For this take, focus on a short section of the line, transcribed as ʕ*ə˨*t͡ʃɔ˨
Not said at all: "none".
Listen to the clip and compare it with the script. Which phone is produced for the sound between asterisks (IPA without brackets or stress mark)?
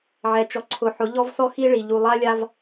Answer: ɛ˨